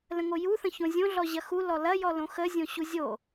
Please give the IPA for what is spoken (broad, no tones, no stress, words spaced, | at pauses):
lə̃ŋoju θə̃çõzʲõ ɮɔʑɐxu lɔlɐ jɔlõxə zʲõɕuzʲo